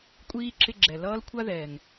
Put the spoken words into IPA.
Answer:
kʷʼiː˥ ǁɪ˦ ɡ͡ǁɛ˨lʌː˥lkʷʰa˥ ðɛ˨ŋ

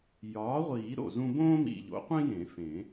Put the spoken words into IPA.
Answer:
jɒː˩˥ʁʷiː˨˩˦ ɾo̰˨˩zũ˦ bõː˦mḭ˨˩ʎo̰˩˥qʷĩ˦ jẽ˨˩˦fẽ˨˩˦

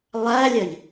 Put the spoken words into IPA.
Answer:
lˠælʲɜʎ

